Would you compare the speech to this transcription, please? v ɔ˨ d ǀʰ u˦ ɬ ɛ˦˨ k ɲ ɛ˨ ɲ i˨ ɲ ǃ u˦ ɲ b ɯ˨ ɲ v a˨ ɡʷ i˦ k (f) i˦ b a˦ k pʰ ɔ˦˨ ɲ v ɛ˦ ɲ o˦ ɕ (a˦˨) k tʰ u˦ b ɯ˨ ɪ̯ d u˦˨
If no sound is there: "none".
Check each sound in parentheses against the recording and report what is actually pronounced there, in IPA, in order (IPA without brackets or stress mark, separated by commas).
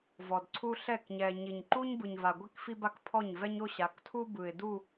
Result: f, a˨˦